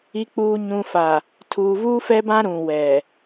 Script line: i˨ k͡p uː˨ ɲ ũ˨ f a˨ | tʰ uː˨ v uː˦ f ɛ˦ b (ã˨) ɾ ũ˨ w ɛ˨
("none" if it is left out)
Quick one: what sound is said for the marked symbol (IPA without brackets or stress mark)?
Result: ã˦